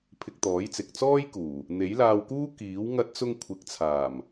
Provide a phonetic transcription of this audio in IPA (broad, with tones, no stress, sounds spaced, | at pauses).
pʰ ɪ˧ k̚ t̪ ɔː˨˥ j t͡s ɪ˨ k̚ t͡s ɔː˥ j k uː˨˩ | n̪ e˨˥ j l aː˧ w k uː˥ k iː˨˥ w ŋ ɐ˧ t̚ t͡s ʊ˧ ŋ kʷʰ ɪ˨˥ k̚ t͡sʰ aː˨˩ m